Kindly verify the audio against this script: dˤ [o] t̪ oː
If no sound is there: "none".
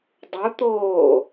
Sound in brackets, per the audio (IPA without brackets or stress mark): u